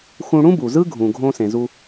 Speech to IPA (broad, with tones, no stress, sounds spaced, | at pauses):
x ũ˧ ɽ ũ˥ b u˩ z ɯ˥ ɡʱ ũ˩ ɡʱ õ˧ s ẽ˩ z u˧